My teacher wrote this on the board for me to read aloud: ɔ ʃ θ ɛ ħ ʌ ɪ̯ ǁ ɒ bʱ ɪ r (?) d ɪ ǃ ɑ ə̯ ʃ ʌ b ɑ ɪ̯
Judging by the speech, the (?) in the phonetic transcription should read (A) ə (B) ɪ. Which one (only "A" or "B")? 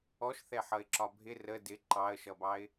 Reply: A